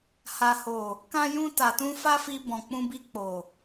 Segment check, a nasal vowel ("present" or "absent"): present